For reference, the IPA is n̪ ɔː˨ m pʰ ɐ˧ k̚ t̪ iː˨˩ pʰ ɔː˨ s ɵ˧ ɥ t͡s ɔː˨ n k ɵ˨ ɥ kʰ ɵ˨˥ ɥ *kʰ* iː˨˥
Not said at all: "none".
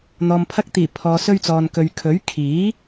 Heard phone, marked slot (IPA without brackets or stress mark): kʰ